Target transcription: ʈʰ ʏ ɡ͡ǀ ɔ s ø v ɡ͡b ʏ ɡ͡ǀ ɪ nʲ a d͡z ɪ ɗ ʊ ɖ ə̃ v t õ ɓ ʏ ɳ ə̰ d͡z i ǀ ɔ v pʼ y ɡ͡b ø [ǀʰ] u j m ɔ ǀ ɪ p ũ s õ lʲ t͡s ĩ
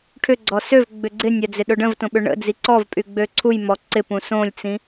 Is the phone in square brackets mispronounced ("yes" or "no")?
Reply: no